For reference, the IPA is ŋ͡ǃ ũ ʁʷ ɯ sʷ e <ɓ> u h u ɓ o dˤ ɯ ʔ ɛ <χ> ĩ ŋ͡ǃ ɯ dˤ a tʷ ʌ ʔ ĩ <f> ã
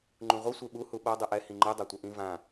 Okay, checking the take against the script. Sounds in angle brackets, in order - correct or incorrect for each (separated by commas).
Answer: correct, incorrect, incorrect